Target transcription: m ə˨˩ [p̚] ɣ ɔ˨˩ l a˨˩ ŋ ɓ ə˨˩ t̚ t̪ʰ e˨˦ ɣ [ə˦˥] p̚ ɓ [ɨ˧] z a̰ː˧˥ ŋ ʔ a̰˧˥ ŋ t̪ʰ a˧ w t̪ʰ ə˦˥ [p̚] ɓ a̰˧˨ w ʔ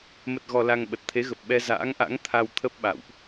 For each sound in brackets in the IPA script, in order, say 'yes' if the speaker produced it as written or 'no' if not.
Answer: no, no, no, yes

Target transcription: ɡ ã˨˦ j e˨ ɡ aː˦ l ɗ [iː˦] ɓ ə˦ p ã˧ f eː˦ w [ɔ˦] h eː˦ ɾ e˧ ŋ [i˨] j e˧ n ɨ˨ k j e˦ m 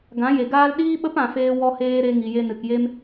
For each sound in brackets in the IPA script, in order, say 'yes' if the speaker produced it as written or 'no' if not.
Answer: yes, yes, yes

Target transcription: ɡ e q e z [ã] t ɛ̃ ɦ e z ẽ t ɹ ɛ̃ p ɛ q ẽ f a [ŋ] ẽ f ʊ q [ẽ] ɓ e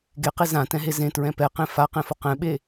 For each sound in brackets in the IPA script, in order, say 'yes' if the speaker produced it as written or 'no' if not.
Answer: yes, no, no

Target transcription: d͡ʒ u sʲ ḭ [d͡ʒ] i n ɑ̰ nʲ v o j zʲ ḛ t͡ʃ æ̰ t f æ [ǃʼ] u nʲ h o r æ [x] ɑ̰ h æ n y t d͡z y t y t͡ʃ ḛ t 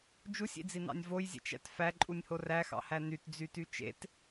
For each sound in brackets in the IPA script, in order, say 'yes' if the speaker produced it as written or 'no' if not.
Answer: no, yes, yes

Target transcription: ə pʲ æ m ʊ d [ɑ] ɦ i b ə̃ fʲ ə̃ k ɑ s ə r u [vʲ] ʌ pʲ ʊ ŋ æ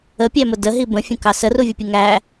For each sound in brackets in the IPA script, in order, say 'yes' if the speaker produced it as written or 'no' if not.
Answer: no, yes

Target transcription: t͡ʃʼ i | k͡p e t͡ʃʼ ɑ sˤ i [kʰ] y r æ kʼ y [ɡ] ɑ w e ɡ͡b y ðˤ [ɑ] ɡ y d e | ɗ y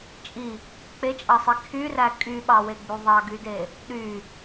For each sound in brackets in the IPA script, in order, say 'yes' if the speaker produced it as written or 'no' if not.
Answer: yes, no, yes

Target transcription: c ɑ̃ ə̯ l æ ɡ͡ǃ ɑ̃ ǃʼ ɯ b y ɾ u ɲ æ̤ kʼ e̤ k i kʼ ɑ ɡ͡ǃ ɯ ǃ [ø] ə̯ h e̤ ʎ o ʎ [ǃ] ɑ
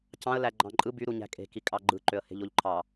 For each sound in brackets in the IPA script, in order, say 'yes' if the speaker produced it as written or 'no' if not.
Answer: yes, no

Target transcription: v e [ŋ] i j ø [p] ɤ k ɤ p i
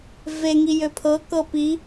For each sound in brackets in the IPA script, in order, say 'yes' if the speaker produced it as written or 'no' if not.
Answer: yes, no

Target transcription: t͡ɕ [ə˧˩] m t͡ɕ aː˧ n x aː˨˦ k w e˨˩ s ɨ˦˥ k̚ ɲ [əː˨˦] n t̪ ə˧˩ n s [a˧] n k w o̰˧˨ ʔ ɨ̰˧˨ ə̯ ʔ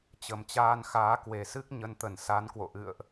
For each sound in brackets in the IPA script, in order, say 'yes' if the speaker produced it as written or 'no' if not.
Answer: no, no, no

